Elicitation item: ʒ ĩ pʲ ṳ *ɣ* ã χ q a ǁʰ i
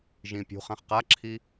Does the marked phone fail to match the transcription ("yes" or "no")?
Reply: yes